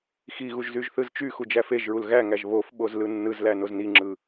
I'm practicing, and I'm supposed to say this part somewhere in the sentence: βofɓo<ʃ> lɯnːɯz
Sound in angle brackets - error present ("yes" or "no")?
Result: yes